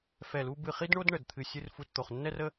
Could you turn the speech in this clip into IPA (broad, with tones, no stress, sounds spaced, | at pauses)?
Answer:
f ɛ˦˨ l u˥ b ɨ˦˨ χ i˥ d ɳ o˥ d ɳ ə˦˨ d t̪ʰ ɨ˦˨ sʲ ɨ˥ r f u˦˨ t t̪ o˦˨ χ nː ɛ˥ r ə˥